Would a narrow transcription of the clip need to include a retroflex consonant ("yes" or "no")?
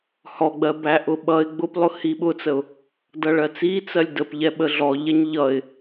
yes